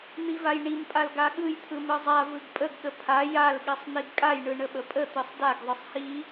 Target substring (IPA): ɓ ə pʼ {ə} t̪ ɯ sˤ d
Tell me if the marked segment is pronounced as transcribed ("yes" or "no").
yes